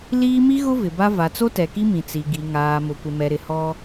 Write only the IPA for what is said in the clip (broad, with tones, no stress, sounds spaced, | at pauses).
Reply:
l iː˦ m i˦ ɣ ʊ˦ v ɪ˨ b a˦ v a˨ t͡s o˦ t ɛ˨ k i˦ m ĩ˨ t͡s i˨ ɡ i˨ ŋ aː˨ m ʊ˨ kʷ ɪ˨ m ɛ˨ ɾ ɪ˨ h ɔ˦